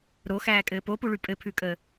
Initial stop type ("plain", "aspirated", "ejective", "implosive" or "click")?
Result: ejective